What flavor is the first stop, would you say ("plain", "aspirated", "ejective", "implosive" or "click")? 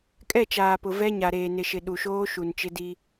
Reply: ejective